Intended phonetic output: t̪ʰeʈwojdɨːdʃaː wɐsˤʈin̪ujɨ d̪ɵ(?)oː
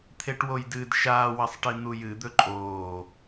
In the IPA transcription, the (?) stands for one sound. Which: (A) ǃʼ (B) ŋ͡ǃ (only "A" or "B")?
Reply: A